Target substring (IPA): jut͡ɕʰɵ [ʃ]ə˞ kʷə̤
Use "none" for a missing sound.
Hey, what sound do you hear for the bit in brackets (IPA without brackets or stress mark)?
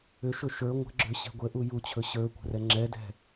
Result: ɕ